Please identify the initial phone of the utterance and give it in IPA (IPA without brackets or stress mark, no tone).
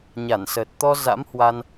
ɲ